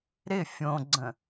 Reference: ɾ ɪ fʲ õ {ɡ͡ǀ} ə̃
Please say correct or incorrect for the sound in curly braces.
correct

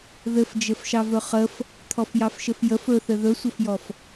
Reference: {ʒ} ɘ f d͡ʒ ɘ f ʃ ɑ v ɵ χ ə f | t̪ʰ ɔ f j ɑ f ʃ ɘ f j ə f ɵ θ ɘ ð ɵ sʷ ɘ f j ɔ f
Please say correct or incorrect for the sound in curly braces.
incorrect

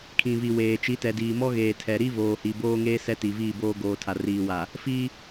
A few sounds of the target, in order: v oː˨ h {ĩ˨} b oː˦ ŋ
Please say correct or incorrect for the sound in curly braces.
incorrect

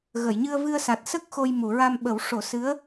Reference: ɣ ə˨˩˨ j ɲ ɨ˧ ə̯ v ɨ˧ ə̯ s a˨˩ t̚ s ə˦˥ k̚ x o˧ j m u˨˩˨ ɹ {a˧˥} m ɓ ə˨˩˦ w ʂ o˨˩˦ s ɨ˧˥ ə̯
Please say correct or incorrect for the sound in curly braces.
incorrect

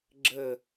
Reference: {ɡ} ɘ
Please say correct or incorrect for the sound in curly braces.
incorrect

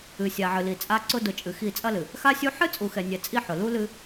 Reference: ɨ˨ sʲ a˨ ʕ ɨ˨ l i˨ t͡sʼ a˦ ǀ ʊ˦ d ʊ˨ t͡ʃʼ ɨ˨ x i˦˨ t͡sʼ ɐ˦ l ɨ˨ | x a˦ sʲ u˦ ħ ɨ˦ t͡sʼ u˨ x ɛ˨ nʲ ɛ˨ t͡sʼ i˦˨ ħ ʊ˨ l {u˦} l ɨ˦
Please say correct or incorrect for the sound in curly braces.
correct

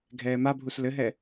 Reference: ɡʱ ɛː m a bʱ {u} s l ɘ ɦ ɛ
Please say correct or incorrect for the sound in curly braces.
correct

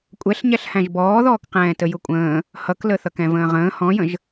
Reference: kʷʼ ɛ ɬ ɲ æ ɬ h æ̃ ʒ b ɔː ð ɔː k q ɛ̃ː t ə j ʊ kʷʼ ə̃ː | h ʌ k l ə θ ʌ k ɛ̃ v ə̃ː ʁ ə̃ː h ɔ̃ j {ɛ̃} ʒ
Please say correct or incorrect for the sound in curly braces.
incorrect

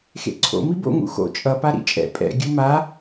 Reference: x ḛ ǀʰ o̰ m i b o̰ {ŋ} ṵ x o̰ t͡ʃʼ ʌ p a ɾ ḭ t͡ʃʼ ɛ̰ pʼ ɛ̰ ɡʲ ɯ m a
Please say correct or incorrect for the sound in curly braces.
correct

